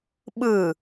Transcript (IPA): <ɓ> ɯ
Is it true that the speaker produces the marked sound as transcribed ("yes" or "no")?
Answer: yes